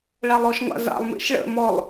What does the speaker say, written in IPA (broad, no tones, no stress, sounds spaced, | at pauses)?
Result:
ɭ a lˠ ɔ ʃ ŋʷ a̰ z a̰ lˠ m ḭ ʃ ɭ ə̰ m ɔ lˠ